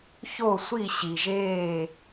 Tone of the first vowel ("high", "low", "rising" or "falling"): falling